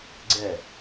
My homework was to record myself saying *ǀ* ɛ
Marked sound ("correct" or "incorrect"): incorrect